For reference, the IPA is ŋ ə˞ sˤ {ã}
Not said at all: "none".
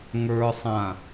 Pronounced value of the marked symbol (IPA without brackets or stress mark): ã